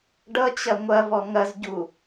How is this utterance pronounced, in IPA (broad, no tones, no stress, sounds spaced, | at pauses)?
ɖ ʌ t͡ɕ ɐ ŋʷ ɐ v ɔ ŋ ɐ z ɟ u